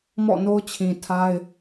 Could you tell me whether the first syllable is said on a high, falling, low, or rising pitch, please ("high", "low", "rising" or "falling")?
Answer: falling